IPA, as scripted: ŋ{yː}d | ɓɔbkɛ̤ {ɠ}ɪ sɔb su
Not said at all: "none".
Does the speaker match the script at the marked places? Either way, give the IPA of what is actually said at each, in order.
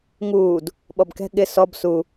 uː, ɠ

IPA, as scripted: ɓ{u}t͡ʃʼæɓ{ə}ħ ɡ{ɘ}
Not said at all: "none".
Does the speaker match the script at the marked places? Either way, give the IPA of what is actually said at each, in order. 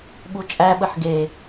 u, ə, e

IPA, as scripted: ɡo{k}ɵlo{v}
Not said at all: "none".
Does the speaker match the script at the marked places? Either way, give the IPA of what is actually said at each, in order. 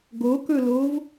k, v

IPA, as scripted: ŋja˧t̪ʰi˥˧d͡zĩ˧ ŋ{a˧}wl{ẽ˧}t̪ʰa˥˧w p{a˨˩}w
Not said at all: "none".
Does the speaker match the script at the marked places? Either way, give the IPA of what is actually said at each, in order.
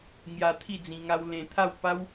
a˧, ẽ˧, a˦

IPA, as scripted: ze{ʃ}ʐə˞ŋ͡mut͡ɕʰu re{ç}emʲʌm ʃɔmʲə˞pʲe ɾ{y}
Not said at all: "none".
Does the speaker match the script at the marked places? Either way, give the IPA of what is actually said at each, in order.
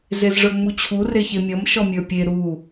z, ç, u

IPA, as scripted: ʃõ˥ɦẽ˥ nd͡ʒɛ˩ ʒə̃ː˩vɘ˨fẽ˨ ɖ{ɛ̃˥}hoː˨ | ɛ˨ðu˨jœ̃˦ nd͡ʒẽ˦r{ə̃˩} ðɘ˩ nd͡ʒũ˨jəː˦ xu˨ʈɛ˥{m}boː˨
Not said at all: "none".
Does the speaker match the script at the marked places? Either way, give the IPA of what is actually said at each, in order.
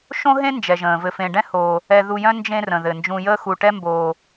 ɛ̃˥, ə̃˩, m

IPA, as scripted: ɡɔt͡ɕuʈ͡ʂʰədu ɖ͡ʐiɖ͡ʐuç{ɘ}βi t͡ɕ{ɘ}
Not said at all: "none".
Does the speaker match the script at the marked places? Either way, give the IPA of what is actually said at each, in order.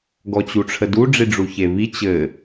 e, ɘ

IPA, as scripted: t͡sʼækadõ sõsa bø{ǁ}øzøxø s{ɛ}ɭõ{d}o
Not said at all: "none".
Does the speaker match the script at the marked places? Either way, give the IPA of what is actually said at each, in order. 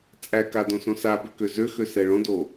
k, ɛ, d

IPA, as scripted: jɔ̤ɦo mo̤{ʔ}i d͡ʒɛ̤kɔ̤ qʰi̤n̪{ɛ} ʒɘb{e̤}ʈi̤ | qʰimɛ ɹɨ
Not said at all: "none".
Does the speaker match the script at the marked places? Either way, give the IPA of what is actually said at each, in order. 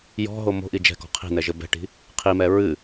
ʔ, ɛ, ɛ̤

